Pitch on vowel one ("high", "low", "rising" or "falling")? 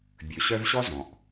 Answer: low